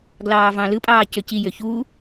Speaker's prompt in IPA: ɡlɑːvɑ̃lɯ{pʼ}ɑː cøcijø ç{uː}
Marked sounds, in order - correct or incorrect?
correct, correct

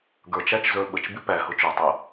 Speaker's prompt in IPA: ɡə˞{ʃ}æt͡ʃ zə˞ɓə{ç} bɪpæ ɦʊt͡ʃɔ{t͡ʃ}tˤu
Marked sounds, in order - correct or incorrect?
incorrect: t͡ʃ, incorrect: t͡ʃ, incorrect: none

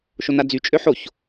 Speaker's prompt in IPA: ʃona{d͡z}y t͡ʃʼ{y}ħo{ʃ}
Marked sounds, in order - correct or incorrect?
correct, incorrect: ø, incorrect: ç

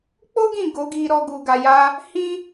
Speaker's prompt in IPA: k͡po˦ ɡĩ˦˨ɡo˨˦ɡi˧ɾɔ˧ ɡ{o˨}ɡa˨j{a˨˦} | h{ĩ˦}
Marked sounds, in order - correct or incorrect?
incorrect: u˨, incorrect: a˧, correct

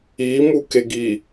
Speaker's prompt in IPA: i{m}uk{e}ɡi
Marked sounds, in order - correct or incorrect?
correct, correct

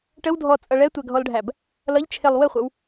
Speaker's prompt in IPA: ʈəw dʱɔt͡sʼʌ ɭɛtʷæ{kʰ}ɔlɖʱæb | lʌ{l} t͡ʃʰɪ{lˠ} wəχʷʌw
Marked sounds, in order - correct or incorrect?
incorrect: ɡʱ, incorrect: ʎ, correct

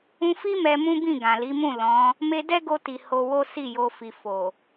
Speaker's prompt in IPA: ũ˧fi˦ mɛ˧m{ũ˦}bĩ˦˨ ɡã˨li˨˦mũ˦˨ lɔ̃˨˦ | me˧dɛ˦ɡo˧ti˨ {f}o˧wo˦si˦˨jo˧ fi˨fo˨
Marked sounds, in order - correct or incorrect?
correct, incorrect: h

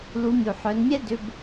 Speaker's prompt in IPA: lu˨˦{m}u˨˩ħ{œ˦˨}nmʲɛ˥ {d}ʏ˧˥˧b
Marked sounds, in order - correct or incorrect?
incorrect: mʲ, incorrect: œ˨˦, correct

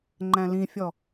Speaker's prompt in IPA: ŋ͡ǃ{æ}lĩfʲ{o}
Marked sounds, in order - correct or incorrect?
incorrect: æ̃, incorrect: ɔ

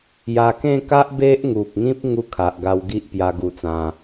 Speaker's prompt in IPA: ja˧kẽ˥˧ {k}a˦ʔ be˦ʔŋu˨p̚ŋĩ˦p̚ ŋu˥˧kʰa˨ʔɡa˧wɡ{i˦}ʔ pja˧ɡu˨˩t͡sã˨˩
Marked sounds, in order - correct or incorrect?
correct, correct

